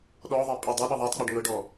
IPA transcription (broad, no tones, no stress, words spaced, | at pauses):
ɗɔðˤɛ pʼɛdˤɤɗɤ ðˤɤtˤk͡pɛɖ ŋɤɖɔ